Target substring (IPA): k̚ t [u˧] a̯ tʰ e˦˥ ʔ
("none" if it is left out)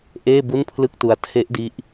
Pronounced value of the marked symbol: u˧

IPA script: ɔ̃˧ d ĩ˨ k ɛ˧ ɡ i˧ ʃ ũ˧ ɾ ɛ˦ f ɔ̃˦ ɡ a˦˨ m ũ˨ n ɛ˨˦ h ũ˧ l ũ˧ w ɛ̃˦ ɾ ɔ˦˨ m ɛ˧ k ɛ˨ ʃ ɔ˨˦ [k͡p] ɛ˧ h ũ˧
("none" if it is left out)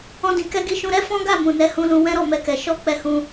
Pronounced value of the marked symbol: k͡p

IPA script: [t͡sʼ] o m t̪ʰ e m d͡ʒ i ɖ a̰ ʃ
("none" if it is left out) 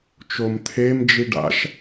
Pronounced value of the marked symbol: t͡ʃ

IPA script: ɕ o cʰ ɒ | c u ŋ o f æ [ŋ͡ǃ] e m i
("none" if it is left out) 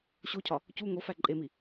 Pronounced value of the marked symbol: ǃʼ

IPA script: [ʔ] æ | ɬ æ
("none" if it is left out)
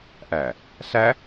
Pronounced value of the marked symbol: ʔ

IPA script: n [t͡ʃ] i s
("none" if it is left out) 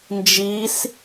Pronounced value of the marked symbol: d͡ʒ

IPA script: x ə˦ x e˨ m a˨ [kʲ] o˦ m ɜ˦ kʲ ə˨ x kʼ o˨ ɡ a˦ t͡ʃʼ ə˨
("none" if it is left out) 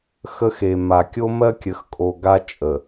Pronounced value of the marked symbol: kʲ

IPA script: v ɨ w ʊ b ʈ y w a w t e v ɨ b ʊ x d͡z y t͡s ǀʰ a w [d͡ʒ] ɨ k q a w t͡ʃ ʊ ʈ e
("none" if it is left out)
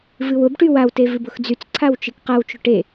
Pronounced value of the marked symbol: t͡ʃ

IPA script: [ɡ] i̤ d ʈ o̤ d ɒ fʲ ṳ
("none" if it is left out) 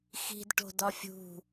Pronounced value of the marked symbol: x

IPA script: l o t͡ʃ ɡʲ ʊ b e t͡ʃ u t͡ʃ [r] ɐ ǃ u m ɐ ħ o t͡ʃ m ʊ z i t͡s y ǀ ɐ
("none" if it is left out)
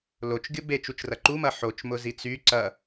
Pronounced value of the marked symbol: r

